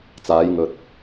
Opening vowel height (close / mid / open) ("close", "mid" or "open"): open